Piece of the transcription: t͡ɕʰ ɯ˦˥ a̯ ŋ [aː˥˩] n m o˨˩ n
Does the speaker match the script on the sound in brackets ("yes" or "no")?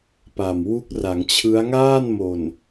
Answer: yes